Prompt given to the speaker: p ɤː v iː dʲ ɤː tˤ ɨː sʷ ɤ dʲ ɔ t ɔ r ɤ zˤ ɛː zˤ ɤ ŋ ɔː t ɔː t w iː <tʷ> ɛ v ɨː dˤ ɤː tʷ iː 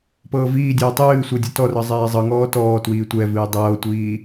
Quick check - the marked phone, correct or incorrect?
correct